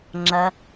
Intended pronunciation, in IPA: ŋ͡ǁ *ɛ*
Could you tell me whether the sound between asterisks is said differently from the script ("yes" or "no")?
yes